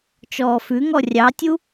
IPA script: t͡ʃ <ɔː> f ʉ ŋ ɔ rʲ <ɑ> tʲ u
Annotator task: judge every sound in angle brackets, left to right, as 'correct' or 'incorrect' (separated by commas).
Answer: correct, correct